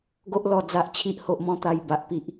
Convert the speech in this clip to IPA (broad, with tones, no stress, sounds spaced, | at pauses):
ɡ o˦ ʔ l ɔ˧ d͡z a˨ ʔ t͡ɕʰ i˨ ʔ h o˨ ʔ m ɔ̃˧ t̪ a˨˩ j b a˨ ʔ p i˨ ʔ